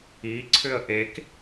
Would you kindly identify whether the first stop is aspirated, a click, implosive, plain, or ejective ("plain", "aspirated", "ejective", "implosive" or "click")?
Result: click